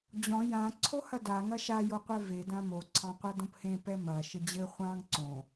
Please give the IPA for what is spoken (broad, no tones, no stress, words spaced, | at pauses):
d͡ʑɔ̃ jã ǀʰohɐda ŋɐʃa joqʷɛve dãmo ǀʰɑ̃qʷadõphẽ pɛmɐ ʃɘd͡ʑɘ χʷɑ̃ŋ ǀõ